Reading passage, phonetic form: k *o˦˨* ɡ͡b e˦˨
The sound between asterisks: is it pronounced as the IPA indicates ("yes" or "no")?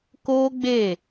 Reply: no